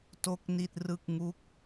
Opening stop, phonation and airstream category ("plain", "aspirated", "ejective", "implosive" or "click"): plain